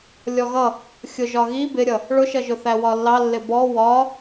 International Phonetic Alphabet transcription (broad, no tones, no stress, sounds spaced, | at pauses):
lʲ ɔ ɣ ʌ | xʲ ʊ ʒ ɒ ɣ i b ɪ ɾʲ ʌ | ɭ ʊ ʃ ʌ ʒ ʊ θ æ w ɒ lː ɑ lː ɪ b ɔ w ɒ